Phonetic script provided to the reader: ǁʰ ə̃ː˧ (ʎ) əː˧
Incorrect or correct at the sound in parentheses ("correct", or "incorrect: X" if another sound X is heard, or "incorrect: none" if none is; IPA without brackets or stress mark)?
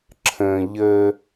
correct